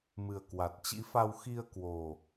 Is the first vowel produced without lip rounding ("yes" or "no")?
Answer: yes